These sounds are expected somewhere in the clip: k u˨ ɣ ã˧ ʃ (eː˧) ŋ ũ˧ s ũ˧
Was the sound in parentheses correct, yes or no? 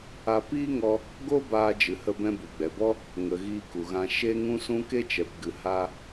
no